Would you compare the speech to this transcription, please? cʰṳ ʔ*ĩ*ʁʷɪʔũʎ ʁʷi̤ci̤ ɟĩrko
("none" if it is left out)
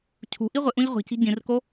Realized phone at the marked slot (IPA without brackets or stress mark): i